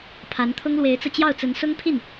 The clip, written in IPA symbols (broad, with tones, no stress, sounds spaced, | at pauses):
pʰ a˧˥ n t̪ʰ ʊ˥ ŋ l w e˧˥ ɪ̯ t͡s ɤ˧ t͡ɕ j ɑ˥˩ ʊ̯ t͡s ə˧˥ n s ʊ˥ ŋ pʰ i˥˩ n